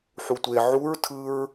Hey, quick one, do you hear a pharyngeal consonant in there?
yes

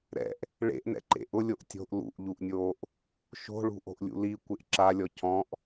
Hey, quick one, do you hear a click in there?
yes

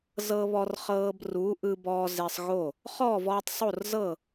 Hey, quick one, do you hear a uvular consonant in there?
yes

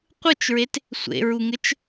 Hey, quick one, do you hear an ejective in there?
no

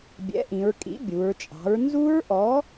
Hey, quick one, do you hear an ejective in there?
yes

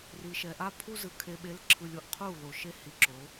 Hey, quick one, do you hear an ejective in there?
no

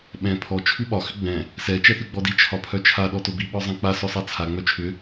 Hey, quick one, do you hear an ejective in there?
no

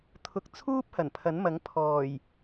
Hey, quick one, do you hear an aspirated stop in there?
yes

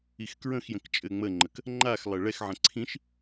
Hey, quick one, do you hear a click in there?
yes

